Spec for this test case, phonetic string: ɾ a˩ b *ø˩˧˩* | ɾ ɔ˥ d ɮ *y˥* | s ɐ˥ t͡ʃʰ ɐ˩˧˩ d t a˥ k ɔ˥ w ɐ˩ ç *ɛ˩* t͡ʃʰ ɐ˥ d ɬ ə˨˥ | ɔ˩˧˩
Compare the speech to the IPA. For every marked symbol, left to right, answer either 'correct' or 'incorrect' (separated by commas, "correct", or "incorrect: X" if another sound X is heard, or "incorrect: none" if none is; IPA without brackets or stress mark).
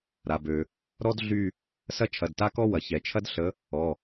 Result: incorrect: ø˩, incorrect: y˥˧, correct